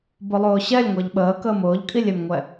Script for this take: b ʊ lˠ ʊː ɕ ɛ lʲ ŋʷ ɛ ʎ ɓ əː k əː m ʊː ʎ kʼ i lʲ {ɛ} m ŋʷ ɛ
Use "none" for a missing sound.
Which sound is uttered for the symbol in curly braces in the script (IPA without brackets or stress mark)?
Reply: ɛ